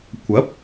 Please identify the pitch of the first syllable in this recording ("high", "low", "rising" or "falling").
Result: rising